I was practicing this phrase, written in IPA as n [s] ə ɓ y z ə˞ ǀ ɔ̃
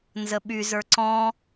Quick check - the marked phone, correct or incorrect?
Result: incorrect: z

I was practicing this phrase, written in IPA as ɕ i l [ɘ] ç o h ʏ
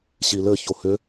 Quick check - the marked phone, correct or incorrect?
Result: correct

